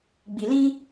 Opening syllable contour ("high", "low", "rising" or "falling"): low